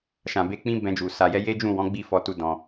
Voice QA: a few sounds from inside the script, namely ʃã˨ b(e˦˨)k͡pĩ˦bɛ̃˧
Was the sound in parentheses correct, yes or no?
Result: no